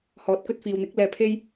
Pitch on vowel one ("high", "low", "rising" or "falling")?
low